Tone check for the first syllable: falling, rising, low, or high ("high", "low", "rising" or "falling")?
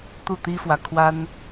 falling